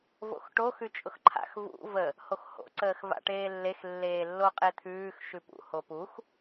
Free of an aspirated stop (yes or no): no